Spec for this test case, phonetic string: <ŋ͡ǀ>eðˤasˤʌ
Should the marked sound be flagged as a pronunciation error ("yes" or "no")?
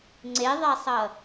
no